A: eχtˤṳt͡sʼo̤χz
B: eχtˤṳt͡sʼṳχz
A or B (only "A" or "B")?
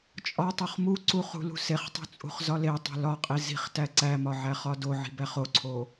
B